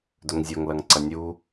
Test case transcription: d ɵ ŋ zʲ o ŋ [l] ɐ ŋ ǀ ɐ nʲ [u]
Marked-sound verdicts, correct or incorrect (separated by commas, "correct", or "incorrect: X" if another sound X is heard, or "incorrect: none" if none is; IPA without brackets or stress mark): correct, correct